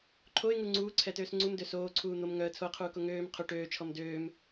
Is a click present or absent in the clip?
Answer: present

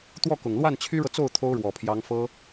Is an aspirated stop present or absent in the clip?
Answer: present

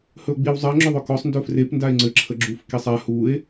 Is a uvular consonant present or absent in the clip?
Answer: absent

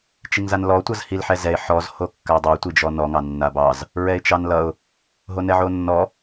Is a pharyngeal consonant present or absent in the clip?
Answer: present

